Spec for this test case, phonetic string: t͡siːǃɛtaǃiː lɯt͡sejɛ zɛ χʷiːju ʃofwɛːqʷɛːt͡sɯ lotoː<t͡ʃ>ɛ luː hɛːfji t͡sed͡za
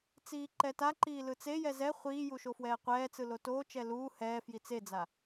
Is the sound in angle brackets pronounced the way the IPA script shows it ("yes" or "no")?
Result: yes